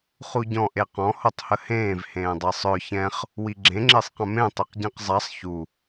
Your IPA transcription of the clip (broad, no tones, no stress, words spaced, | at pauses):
χuɟɔ̃ ʔeqɔ̃ hotˤhəhẽːv hẽːdˤɛsˤœ çɛ̃χ | wiɡ͡ǁẽ ŋ͡ǁesˤqə̃mẽ tˤiqɟɛ̃qzˤasˤ çu